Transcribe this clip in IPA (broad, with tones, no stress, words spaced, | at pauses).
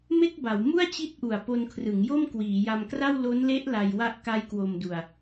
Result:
me˥˩k̚ba˩˦w mu˥˩a̯t͡ɕi˦˥t̚ʔu˨˩a̯ po˧nkʰrɯ˩˦ŋjo˥˩m kwiː˩˦ja˧mkra˥˩w lo˦˥nle˦˥ʔ la˧jwa˦˥ʔ ka˦˥jkwo˧mdu˧a̯